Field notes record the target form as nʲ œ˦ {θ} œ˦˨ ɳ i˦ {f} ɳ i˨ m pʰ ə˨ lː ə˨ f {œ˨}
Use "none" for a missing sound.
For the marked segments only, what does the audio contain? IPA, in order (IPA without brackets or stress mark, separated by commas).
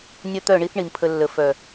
t̪, θ, œ˨